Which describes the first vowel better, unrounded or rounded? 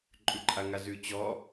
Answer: rounded